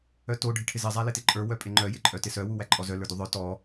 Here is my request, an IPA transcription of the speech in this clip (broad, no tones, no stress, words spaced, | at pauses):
œto ɖʱɪʈʰɪzɪ zˤælɪtɪǃʼə˞ wœpʼɪŋ͡ǃœ jɪǃʼœtɪsœ wuwæǃʼɔzœ lə˞duðˤœ tɔ